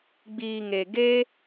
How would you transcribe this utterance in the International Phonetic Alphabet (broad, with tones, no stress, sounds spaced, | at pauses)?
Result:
ɡ͡b iː˨ ŋ e˨ ɡ e˧